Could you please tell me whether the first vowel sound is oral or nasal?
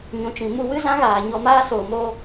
nasal